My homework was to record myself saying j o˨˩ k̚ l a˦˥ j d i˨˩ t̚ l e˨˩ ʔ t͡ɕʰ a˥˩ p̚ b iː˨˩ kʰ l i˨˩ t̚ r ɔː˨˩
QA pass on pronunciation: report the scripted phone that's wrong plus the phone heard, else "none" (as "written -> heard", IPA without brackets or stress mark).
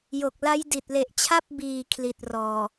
none